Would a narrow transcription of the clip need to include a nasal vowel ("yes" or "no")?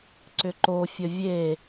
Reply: no